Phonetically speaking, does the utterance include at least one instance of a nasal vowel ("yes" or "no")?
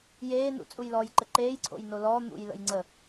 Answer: no